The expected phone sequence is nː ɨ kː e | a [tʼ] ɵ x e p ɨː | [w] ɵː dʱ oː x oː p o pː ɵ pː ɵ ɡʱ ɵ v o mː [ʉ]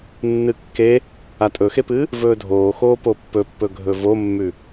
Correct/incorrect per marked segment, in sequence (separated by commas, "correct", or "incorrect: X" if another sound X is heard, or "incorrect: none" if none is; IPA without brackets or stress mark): correct, incorrect: v, correct